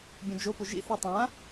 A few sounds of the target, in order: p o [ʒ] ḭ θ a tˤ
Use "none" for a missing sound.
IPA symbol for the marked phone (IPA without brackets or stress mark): ʒ